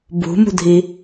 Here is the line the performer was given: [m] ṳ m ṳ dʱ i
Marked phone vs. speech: incorrect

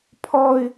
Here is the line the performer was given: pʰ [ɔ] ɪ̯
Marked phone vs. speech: correct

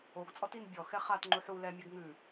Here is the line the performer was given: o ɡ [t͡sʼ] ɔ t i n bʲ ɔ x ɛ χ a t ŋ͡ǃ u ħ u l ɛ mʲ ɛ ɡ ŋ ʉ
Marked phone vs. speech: correct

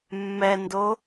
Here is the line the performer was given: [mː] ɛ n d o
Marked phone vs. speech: correct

